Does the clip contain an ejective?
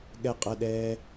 yes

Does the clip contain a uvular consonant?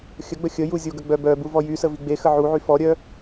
no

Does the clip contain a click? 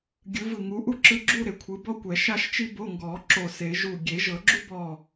yes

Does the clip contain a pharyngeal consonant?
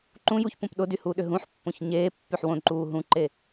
yes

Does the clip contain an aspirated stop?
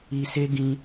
no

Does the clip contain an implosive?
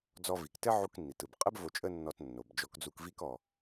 no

